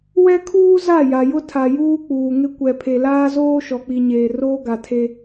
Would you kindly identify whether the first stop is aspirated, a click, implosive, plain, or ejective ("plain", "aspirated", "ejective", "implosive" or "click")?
aspirated